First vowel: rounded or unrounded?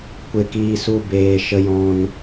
unrounded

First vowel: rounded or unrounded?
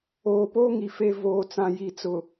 rounded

